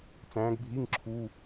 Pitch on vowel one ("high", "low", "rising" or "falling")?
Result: rising